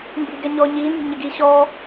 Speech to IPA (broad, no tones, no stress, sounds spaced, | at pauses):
m b i̤ ɡ ɛ ɲ ɔː ɲ iː n z i̤ ɲ ɪ ɡ iː ɕ ɔː